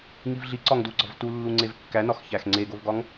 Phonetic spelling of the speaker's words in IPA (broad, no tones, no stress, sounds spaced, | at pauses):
ŋ i v ɮ i ǀ ɒ ŋ d u ɡ͡ǀ ɒ v t u lː u ŋ͡ǀ e v kː æ n ɒ x ç æ x ŋ͡ǀ e ɡ o v ɡ ɒ ŋ